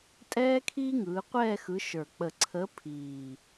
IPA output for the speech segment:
tʼ ɛː˦ kʰ iː˦ ŋ ɯː˩˧ qʷ ɛː˦˨ x ɯ˨˥ ʃ ə˞˨˩ k͡p ə˨˩ ǀʰ əː˨˥ pʰ iː˨˩

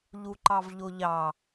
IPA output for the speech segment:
ʎ u ǃ ɑ v ʎ o ʎ ɑ

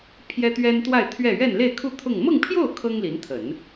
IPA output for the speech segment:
pʰ j ɛ˥ t̪ ɥ ɛ˥ n t̪ w a˥˧ ɪ̯ t̪ʰ ɥ ɛ˥˧ ɥ ɛ˥˧ n l e˥˧ ɪ̯ kʰ u˥˧ t̪ʰ ʊ˥˧ ŋ m ɤ˥˧ ŋ pʰ j o˥˩ ʊ̯ kʰ ɤ˥ ŋ l i˧˥ n t̪ʰ ə˨˩˦ n

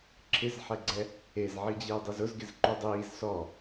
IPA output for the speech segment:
ǁʰ ɪ z ħ ɛ ɡ͡ǀ ɛ | e z ʕ i d͡ʑ eː dˤ i z ʊ z ɡ ɪ z ǃ u dˤ iː z s ɔ

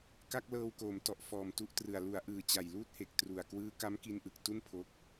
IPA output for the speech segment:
k a˥˩ k̚ l ɤː˧ w k oː˩˦ m t ɔ˨˩ ʔ f ɔː˨˩ m t u˦˥ ʔ t r ɯ˨˩ a̯ l u˩˦ a̯ ʔ ɯː˨˩ t͡ɕ a˨˩ j l uː˦˥ t̚ h e˨˩ k̚ t r u˨˩ a̯ k w ɯː˦˥ k a˦˥ m k i˧ n ʔ ɯ˨˩ k̚ t u˥˩ n pʰ o˦˥ k̚

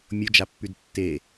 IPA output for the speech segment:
mʲ o d͡ʒ a pː y d tː e

